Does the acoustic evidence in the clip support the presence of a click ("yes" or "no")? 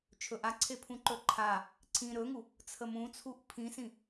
yes